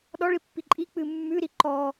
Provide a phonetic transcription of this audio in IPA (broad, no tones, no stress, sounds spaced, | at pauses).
ɗ ɔ ɭ i pː i ǃʼ i k͡p ɨ mː ʉ ɾ i ǃ ɔ